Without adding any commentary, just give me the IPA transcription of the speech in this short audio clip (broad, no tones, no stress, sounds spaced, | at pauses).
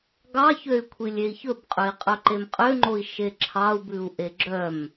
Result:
ɡ ɑ ç ø y̯ kʷʰ i lʲ e i̯ ç ɵ b qʼ ø i̯ qʼ œ ǃ e m qʼ ø ŋ͡ǃ o i̯ ʃ e ǁʰ ɑ u̯ b ʉ u̯ ʔ e ɡ͡ǁ œ m